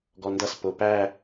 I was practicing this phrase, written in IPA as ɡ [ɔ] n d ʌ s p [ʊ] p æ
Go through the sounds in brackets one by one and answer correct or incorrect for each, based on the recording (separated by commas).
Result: correct, correct